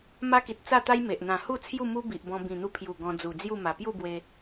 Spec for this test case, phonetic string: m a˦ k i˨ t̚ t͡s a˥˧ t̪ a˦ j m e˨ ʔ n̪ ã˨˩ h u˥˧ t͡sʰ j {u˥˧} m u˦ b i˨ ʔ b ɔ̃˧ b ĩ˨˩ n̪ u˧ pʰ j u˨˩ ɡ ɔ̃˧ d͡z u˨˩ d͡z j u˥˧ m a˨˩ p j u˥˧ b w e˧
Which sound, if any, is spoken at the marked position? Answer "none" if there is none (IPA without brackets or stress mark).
u˥˧